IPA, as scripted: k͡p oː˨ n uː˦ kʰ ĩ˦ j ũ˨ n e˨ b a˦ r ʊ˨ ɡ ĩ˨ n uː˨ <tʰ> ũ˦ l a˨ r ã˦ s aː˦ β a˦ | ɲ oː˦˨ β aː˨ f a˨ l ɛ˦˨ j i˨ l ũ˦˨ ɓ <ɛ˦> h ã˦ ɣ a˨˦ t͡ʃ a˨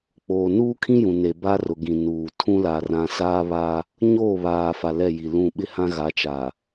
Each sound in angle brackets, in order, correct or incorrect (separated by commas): correct, incorrect